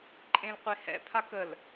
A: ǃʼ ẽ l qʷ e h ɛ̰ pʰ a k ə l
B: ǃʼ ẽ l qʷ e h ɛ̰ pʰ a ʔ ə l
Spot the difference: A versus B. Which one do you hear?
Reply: A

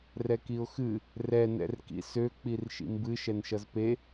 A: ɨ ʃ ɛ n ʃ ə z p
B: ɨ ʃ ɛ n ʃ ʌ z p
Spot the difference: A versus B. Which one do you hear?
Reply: B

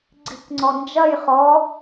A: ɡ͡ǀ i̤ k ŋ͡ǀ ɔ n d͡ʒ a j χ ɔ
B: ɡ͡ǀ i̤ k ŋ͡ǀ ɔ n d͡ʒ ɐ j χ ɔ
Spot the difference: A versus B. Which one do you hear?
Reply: B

